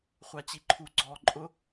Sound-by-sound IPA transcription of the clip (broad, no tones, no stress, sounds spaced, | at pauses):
χʷ a t͡ɕ i ǃʰ u ɡ͡ǀ ɔ ǃʼ ʊ